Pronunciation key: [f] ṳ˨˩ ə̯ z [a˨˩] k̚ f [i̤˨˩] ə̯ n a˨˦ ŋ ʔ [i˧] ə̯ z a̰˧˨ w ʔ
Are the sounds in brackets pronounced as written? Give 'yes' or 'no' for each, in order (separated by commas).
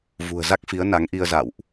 no, no, no, yes